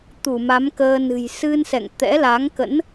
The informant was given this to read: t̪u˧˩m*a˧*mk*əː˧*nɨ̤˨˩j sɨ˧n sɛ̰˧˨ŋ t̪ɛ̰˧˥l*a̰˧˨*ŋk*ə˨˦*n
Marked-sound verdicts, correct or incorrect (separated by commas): incorrect, correct, incorrect, incorrect